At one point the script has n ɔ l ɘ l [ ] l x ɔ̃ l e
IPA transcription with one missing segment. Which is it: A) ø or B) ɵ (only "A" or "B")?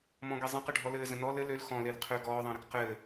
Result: A